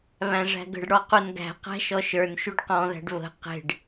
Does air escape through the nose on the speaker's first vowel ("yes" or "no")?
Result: yes